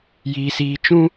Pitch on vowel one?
high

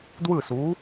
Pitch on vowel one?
falling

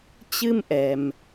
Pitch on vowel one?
high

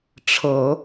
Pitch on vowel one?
low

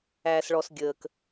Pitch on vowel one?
low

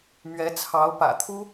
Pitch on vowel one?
rising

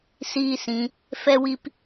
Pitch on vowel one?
high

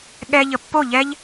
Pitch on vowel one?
high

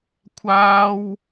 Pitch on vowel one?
high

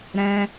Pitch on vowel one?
high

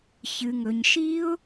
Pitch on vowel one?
low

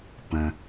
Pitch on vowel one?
low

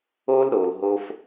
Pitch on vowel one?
high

